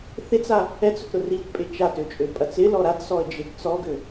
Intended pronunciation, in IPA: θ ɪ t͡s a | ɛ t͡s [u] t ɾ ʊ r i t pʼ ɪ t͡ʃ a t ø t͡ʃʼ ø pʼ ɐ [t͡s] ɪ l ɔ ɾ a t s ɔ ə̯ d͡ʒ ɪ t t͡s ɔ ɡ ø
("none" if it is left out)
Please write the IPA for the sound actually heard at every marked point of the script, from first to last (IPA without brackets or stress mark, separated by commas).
ʊ, t͡s